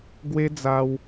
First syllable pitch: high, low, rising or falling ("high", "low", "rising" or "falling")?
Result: high